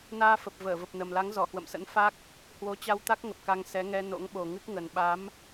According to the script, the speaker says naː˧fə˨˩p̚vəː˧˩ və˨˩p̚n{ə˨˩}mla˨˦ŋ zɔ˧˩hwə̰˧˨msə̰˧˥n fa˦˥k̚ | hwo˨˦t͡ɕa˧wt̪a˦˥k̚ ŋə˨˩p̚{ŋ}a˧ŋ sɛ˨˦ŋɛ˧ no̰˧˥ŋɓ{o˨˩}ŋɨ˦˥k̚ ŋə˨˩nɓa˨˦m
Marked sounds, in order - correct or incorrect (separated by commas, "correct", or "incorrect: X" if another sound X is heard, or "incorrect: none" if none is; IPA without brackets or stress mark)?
correct, incorrect: k, correct